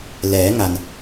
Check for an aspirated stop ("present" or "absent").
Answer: absent